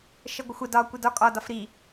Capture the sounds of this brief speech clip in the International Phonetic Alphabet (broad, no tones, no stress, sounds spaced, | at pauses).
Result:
ʃ ə ɡʷ ə xʷ ə d ɒ kʷ i d ɒ kʼ ɒ d ɒ f ɾ i